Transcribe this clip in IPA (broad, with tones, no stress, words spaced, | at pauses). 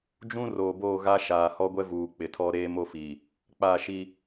d͡ʒũ˦ roː˨boː˦˨ɣa˦ ʃaː˨hɔ˦ɡʷɛ˦ vuː˨k͡pɪ˨tʰɔ˦ ɾeː˦mo˦fi˨ | k͡paː˦˨ʃi˦